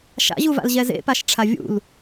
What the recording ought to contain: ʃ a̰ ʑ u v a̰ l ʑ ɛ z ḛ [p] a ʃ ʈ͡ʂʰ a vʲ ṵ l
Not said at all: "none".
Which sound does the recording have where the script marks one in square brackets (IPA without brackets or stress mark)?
p